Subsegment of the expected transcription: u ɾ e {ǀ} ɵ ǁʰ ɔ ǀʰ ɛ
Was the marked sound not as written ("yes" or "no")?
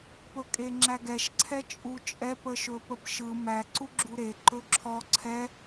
yes